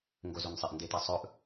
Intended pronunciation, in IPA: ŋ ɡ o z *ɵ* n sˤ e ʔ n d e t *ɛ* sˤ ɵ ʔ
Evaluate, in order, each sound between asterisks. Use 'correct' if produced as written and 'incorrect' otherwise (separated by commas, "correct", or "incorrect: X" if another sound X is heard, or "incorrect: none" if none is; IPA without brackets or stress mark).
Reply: incorrect: o, correct